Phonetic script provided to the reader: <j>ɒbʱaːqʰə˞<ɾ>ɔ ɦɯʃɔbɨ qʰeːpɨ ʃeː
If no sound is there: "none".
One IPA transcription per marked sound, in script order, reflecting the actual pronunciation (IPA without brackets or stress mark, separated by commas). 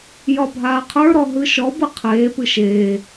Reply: j, ɾ